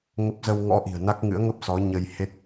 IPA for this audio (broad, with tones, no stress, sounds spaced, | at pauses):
ŋ ə˦˥ p̚ z ə˧ w ŋ ɔ̰˧˥ ʔ i̤˨˩ ə̯ n a˦˥ k̚ ŋ ɨ̰˧˥ ə̯ ŋ ə˦˥ p̚ s ɔ˨˦ ɲ ə˧ j h e˦˥ t̚